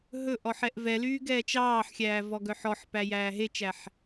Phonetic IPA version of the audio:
ɦ ɵ ʔ ɔ ħ ɛ ʔ v ɛ l yː ɡ ɛː t͡ʃ ɑː ħ xʲ æː v ɔ ɡ œ ħ ɔ ħ p æ j æː ɦ e t͡ʃ æ ħ

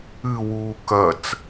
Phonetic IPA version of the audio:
ɨ w uː k ɐ t͡s

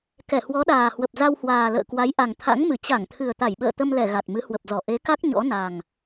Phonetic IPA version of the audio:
k ɛ˧˩ h w ɔ˨˦ ɗ aː˨˩ h w ə˨˩ p̚ z a˧ w h w aː˨˩ l ə̰ː˧˨ k w a˨˦ j ʔ a˨˩ ŋ t̪ʰ a̰˧˥ ŋ m ɨ˧˩ t͡ɕ a˧˩ ŋ t̪ʰ ɨ˨˩ ə̯ t̪ a˧˩ j ɓ ə̰ː˧˨ t̪ ə˧ m l ɛ˧˩ ɣ a˨˩ t̚ m ɨ˨˦ h w ə˨˩ p̚ z ɔ˧˩ ʔ e˨˦ k a˦˥ k̚ ɲ ɔ̰˧˥ n a˨˩ ŋ

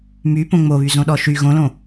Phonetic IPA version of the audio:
m y p õ ŋ͡m o β y z õ ɗ ɔ ʃ y ɣ õ l õ

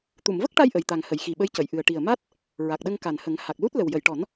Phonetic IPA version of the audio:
t̪ u˨˩˨ m v ə˦˥ k̚ ʈ a˧ j ʔ ə˨˩ j t̪ a˨˩ ŋ h ə˨˩˨ j x i˨˩ ɓ ə˧˥ j c ə˨˩˨ j ʔ ɨ˨˩ ə̯ ʈ i˨˩ ə̯ m a˦˥ t̚ | ɹ a˨˩ k̚ ɗ ə˧ ŋ k a˨˩ n h ə˨˩˦ ŋ h a˨˩ k̚ l u˦˥ t̚ l ə˨˩ w j ə˨˩˨ j ʈ ɔ˨˩˦ n

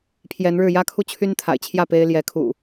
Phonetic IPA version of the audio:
pʰ j ɛ˨˦ n ɻ ɻ̩˥˨ j ä˦ kʰ u˦ t͡ɕʰ y˦ n t̪ʰ a̰˨˩ ɪ̯ t͡ɕʰ j ä˥˨ p e˦ ɪ̯ l j ɛ˨˦ kʰ ṵ˨˩

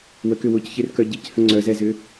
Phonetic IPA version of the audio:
w ə k ʏ w ʊ c ç e r k œ ɟ i c h ə̃ ŋ͡ǀ œ z ɛ z ʏ

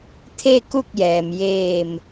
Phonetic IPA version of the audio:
t̪ʰ e˥˨ k u˥˨ k̚ j ɛː˩ m j eː˧˩ m

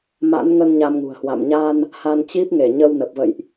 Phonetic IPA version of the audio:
m a̰˧˥ n ŋ ə˧ n ɲ a˧ m ŋ ṳ˨˩ ə̯ h w a̰˧˨ m ɲ a˧ n | h a˧ n t͡ɕ i˦˥ p̚ ŋ e˧˩ ɲ ə˧ w n ə˨˩ p̚ v ə̰˧˨ j ʔ

